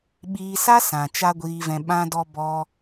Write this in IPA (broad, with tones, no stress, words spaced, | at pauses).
ɓiː˧sa˦sã˨ t͡ʃa˦ɡʷiː˧vɛ̃˧ ɓã˧dɔ˧ bɔ˦